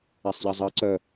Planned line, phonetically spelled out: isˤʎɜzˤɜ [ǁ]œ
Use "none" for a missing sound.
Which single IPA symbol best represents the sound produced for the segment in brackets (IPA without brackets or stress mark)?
ǀ